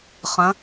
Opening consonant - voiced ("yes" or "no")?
no